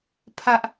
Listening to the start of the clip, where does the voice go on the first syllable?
high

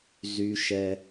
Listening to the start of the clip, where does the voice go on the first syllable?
high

